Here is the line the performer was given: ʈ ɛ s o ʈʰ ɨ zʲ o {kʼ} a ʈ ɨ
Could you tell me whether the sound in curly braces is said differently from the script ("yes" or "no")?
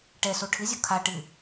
yes